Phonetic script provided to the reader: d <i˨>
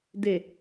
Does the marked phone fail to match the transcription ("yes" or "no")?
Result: yes